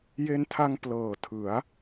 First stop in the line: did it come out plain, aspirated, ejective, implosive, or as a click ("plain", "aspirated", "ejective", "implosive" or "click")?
aspirated